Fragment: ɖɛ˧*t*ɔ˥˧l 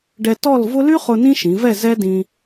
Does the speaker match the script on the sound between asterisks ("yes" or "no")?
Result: yes